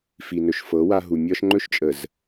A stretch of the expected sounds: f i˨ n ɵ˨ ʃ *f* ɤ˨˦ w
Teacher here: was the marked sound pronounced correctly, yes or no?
yes